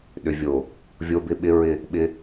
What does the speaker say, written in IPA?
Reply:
ɗ ʏ˨ vʲ o˨ | vʲ o˦ b ɪ˦ ɓ ɪ˦ ɹ ɪ˦˨ | ɓ ɪ˦

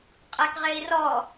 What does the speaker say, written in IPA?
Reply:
qʼ ɛ k ʁ e i̯ r ɔ

